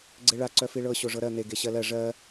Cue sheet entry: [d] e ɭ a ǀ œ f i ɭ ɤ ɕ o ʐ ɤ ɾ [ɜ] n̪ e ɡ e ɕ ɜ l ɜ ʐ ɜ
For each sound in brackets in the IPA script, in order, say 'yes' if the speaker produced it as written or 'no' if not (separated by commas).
no, yes